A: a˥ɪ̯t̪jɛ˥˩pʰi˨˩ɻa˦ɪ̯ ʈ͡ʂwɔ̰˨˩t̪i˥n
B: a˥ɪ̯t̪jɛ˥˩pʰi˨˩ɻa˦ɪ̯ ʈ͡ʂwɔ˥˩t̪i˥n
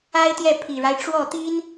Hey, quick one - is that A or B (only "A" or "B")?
B